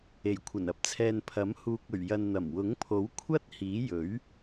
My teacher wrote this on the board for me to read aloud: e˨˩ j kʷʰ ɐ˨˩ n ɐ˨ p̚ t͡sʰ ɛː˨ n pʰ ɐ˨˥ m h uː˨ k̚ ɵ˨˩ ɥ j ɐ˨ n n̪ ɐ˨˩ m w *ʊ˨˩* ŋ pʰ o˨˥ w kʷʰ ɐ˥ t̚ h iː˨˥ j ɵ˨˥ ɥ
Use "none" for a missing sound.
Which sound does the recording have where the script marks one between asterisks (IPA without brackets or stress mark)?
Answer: ʊ˨˥